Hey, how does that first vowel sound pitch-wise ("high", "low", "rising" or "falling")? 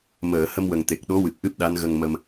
low